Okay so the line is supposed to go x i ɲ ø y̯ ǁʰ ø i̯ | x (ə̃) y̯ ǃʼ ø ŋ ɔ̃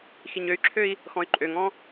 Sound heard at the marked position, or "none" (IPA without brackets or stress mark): ɔ̃